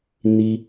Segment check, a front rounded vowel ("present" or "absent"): absent